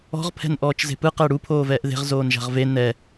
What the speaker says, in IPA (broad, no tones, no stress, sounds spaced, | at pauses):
ɔ̤ ʁ pʰ ɛ̤ n ʔ ɔː t͡ʃ z e̤ p ɯ q ɛ ɽ u pʰ oː v ɛː ʔ ð e̤ ʁ z oː n ʒ a̤ ʁ v e n ɛ